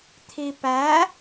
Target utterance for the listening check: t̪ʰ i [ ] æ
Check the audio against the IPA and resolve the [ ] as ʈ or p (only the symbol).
p